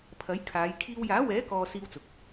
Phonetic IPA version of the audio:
pʰ ɐ˨˥ j kʰ aː˨˧ j kʰ iː˧ w j aː˨˥ w ɛː˨˥ k ɔː˨ s iː˥ w t͡s ʊ˨˥ k̚

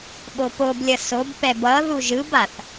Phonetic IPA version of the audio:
ɓ o p o b lʲ ʌ s o b p ɛ b ʌ ð u ʒ ɯ b a θ

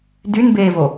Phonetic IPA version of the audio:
d y n b eː v o

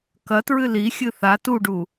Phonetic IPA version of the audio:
k ɐ t ɹ ɨ l i xʲ ɨ θ a t u ɖ u

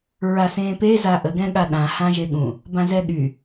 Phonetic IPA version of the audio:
ɹ a s ẽː p e z a ʔ ə ɡ ɛ̃ ɠ a ɗ ã h ã ʒ e ɠ ũ | b ã z ɛ ɠ y

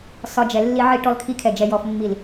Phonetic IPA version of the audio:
s ɒ˧ d͡ʒ ɛ˨ lː i˧ ʕ i˧ ʈ ɔ˧ l kʰ i˧ kʰ ɛ˨ d͡ʒ ɛ˨ j ɔ˨ f mː i˨ l

